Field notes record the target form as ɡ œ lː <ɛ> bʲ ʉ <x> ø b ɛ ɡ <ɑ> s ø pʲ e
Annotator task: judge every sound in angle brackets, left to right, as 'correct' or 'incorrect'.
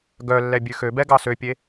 correct, correct, correct

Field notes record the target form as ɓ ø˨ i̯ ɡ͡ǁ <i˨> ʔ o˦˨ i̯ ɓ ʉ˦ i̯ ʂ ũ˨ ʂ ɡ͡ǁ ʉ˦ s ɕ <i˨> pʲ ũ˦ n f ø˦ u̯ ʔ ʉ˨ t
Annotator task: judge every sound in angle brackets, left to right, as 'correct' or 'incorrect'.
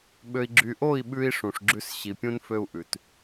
incorrect, correct

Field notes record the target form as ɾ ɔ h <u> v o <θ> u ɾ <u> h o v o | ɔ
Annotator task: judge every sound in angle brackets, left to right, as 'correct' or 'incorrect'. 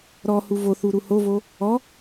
correct, correct, correct

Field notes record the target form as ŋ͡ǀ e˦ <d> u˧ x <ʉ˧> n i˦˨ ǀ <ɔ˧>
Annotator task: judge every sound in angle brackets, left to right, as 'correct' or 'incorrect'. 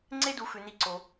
correct, correct, incorrect

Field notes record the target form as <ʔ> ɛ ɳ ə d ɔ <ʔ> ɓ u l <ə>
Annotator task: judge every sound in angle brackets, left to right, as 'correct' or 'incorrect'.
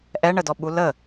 correct, incorrect, correct

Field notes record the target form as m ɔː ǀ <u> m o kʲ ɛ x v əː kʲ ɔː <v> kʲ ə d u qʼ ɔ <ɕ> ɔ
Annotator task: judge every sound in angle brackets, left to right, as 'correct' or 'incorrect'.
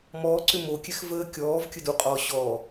incorrect, correct, correct

